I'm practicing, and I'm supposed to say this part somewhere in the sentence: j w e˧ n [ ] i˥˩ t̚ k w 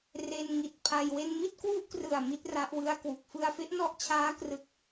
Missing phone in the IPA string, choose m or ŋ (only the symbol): m